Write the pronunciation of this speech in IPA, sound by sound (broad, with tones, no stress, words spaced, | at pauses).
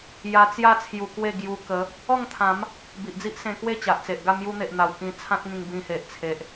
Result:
ja˧t͡sja˥˧ t͡sʰju˧kwe˥˧ɡju˧ kə˨˦ | ɔ˥˧ŋ t̪ʰã˨˦m | bi˨ʔd͡zi˦ʔsẽ˧kwe˥˧ t͡ɕa˨ʔt͡se˨ʔɡa˥˧ mju˧n̪e˨ʔ n̪a˨˩wkĩ˧t͡sʰã˦t̚ŋĩ˧ŋ bĩ˧he˨ʔt͡sʰe˨ʔ